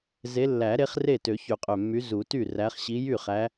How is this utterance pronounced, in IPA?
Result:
z e˨˦ lː æ˨˩˦ ɾ e˨˦ χ r e˥˩ t ø˨˩˦ ç y˨˩ qʼ ø˨˩ mː y˨˦ z u˨˩˦ t y˥˩ r æ˨˦ χ ɕ i˨˦ j y˥˩ χ æ˨˦

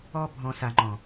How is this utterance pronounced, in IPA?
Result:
ɔ˧ bʱ ɔ̃˨ s a˨ ŋ͡ǃ ɔ̃˨

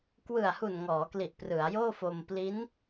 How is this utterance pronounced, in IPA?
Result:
k w ɯ˨˩ a̯ h u˨˩ n ŋ ɔː˩˦ k l i˨˩ ʔ p r ɯ˩˦ a̯ j oː˥˩ f o˧ m p l i˦˥ n

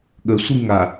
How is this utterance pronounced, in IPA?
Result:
ɠ ə sʷ i ŋ a

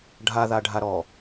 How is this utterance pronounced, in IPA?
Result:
ɖʱ a ð a ɖʱ a ɾ ɔ

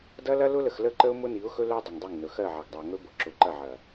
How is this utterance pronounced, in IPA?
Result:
d ɐ˦ l ɐ˦ l ʊ˦ l ə˨ x l ə˦˨ ǃ ə˦ ʊ̯ m ʊ˦ n i˨˦ ʊ̯ x ɵ˦ l ɵ˦ dˤ ə˨ ŋ dˤ i˦˨ ŋ n ɵ˨ x ɜ˦˨ ʕ ɐ˨ ɡ dˤ ə˨ ʊ̯ ŋ ɵ˦ b ʊ˨ ǁ ʊ˨ ǃ ɐ˦˨ ʕ ɐ˨

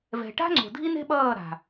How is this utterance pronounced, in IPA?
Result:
v ɛ̤˨ ʈ a̤˦ ŋ͡ǀ o̤˨ dʱ i˦ n e̤˦ ɓ ʌː˦˨ ɾ a̤˨

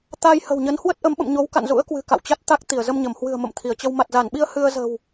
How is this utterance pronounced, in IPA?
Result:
t̪ a˧ j h ə̤˨˩ w ɲ ə˨˦ n h w ə˦˥ t̚ ʔ ə˨˦ m ɓ ə̰˧˨ m ɲ o˨˦ w k a̰˧˨ n z ṵ˧˥ ə̯ k w ɨ̤˨˩ k a̰˧˨ w t͡ɕ a˦˥ t̚ t̪ a˦˥ k̚ t̪ i˧˩ ə̯ z ə˧ m ɲ ə˧˩ m h w ɨ̤˨˩ ə̯ m ə̰˧˨ m t̪ʰ i˧˩ ə̯ t͡ɕ ə˧ w m a˨˩ t̚ z a˧˩ n ɓ i˧ ə̯ h ɨ˧ ə̯ z ə̤˨˩ w

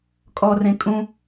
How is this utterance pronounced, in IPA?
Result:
kʼ ɔ r ẽ kʼ ũ

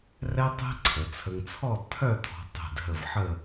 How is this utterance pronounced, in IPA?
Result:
r ɛ˥ tˤ ɛ̤˥ ǀʰ ə˩˧ t͡sʰ ə˧ ŋ t͡sʰ ɔ˥˧ d tʰ œ˥˧ tʰ ɔ̤˧ tˤ ɛ̤˧˩ d ɦ ə˧˩ v ħ ə˥˧

